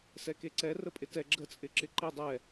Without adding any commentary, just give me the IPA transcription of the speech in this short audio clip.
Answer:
sɛkeǀɛ rəpʼɪtɛ ɡ͡ǁət͡sʼɪǁɪ ǃe dˤɛ

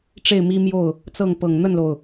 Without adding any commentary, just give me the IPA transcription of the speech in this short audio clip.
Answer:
ʈ͡ʂe˥˩ɪ̯mi˥mjo˥˩ʊ̯ | t͡sɤ˥˩ŋ pɤ˨˩ŋn̪ə˥˩nlo˩ʊ̯

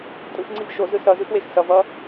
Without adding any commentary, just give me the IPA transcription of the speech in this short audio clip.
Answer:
tʼɯxŋ͡ǀiv ʃozɯ sʌzɯxwex sʌvʌ

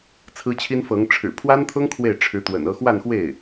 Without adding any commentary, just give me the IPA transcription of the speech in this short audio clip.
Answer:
t͡sʰɹ̩˥t͡ɕʰi˥nfɤ˧˥ŋ ʈ͡ʂʰɻ̩˨˩ pʰwa˥nt̪ʰʊ˥ŋ kʰwe˥˩ɪ̯ʈ͡ʂʰɻ̩˧˥t̪wə̰˨˩nɤ˥˧ xwa˥˧nxwe˥˩ɪ̯

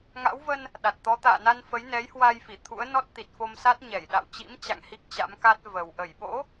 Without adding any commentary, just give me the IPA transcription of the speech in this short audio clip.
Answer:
ŋa̰˧˥wvə˧n | ɗa˨˩t̚t̪ɔ˨˦ t̪a̰ː˧˨na˧n fə˨˦jnɛ˨˦jhwa˧j fi˧˩t̪ʰṵ˧˥ə̯ nɔ˦˥t̚t̪i˨˩t̚fo˧msa˦˥t̚ ɲɛ˧˩jɗa̰˧˨w t͡ɕḭ˧˥mt͡ɕa̰˧˨ŋ hi˦˥k̚t͡ɕa̰˧˥mka˦˥t̚ və˨˩w ʔə˧˩jɓo̰˧˥

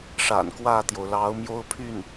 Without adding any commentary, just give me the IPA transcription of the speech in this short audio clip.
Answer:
ʂa̰˨˩nkwä˥˩t̪jo˩ʊ̯ lɑ˧˥ʊ̯mjo˥ʊ̯pʰy˥˩n

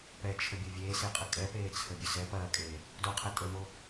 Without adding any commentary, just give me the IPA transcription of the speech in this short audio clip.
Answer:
pɛt͡ʃʰəbʲo vʲeːseqʼə kʼɛpeːt͡sʰəbʲə sɛ pɐːkʼeː | doqʰɐ tʼəmo

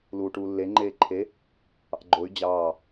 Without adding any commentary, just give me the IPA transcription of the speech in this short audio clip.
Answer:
luːʈuːlːe ŋ͡ǃeːǃʰe | ɑ̰ɡ͡ǃoy̯ d͡ʑɑː

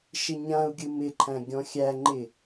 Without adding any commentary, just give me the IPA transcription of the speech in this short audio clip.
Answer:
ʃɪɲãu̯ɡʲɯ mɪǃʰæ̃ ɡʲɔ̃xʲæŋ͡ǃɪ

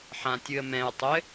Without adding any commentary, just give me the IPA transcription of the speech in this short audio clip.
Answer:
ħãtʲɨə̯mɛ̃ʊ̯tˤɘ

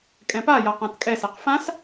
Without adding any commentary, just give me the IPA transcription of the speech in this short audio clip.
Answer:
kʼɛ̃paja qãtkʼɛsɛq fãs

